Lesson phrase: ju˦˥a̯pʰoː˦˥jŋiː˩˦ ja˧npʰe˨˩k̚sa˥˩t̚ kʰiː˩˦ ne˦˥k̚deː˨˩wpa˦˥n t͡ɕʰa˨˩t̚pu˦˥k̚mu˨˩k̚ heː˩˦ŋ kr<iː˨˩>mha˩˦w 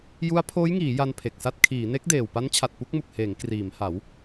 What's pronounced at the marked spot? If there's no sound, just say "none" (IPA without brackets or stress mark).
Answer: iː˩˦